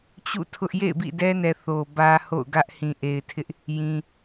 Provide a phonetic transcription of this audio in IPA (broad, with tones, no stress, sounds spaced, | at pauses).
t͡ɕ ṵ˦˨ tʰ ʊ˦ ʔ j ḛ˦˨ ɪ̯ b ḭ˦˨ d ɛ˦ n ɛ˨ θ o˨ b ä˦ h o̰˦˨ ʊ̯ ɡ ä˦ ʔ h ĩ˨ ʔ e˨ ɪ̯ tʰ ɪ˦ ʔ | j ĩ˦